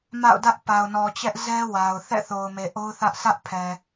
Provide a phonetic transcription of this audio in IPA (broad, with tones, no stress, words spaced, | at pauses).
ma̰˦˨ʊ̯dä˦ʔ pa˨ʊ̯nɔ˨t͡ɕɛ˦ʔzɛ˦ wa˨ʊ̯ θɛ̰˦˨θo˨ʊ̯me˨ ʔo˦ʊ̯θä˦ʔ sä˦ʔpʰɛ˨